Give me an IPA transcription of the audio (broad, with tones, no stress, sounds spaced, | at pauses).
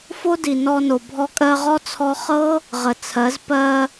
f o˦ d i˨ n ɔ˧ n o˨ bʱ ɔ˧ kʼ ɜ˧ ʁ ɔ˦ t͡sʰ ɔ˧ χ ɤ˦ | ʁ ə˨ t͡sʰ ɜ˨˦ z p ɜ˧